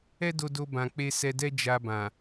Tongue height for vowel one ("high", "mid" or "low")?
mid